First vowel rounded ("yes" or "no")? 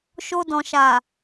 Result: yes